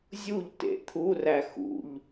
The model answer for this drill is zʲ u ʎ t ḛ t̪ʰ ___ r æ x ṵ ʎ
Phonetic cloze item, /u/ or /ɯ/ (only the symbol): u